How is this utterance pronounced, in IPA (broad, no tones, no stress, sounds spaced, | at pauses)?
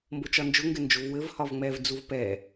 m b o t͡ʃ ɒ n d͡ʒ ʊ ŋ ɡ ɘ n d͡ʒ o v w ɘ v h ɒ v ŋ͡m ɛ v d͡z u v p ɛ